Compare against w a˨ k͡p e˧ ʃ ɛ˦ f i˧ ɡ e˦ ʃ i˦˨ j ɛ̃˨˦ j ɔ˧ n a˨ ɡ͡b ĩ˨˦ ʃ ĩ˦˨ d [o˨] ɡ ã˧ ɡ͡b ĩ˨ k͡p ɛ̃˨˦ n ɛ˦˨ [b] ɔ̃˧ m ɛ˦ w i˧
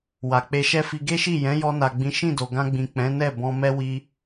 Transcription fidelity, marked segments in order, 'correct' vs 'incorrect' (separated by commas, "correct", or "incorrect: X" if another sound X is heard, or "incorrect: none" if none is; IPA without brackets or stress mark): correct, correct